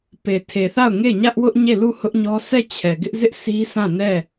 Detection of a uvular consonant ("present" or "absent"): absent